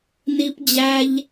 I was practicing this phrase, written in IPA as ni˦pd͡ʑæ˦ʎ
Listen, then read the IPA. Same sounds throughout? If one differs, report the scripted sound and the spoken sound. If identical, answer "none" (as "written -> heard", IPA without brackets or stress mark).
none